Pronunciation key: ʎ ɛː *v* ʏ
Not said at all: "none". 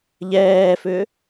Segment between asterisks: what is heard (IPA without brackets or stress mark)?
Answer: f